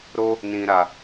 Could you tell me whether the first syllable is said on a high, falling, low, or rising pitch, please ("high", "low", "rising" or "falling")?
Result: high